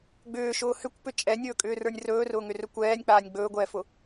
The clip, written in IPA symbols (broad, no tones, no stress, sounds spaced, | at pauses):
ɡ͡b ʏː ʃ ʊː h ʏ kʷ p ʏ t͡ʃʼ ɛ nʲ ɵː kʼ ʏː r ə˞ nʲ r ɵː r ʊː ŋ ʏ r ɵ kʷ ɛː nʲ k͡p aː nʲ ɡ͡b ɵː ɡʷ ɛː f ʊ